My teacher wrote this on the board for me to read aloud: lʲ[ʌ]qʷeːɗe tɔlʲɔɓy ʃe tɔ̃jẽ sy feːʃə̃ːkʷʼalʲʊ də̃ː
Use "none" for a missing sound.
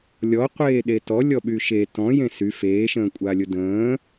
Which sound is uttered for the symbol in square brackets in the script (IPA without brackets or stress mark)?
ɔ